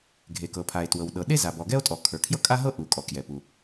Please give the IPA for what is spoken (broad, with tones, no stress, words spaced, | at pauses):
ɡʱe˩kɤ˩pʰa˩e̯ twɤ˩wɗɤ˩ɗe˥ za˩bɔ˩ɡɛ˥o̯tʼɔ˩ kʰə˞˩kʰjɤ˥kʼa˥ɦɤ˥ ʔu˩ kʼɔ˩kjɛ˩pu˩